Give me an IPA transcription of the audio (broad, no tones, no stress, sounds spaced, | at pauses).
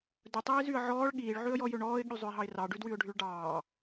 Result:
d ɵ tˤ iː z y ə̯ ʕ ɔː ɭ ɠ iː ɭ ʕ ʉ ə̯ j ɔ j ø ɳ ɔː ɪ̯ ɠ y zˤ ɵ ɪ̯ ɦ ɑ ɪ̯ r ɑ ɖ ʉ d w y ʊ̯ ɖʱ y ɭ ɖ ɑː